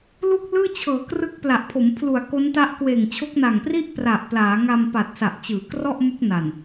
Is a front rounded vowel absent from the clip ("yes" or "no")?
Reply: yes